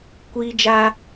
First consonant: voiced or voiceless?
voiceless